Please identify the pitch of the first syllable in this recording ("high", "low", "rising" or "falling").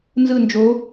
falling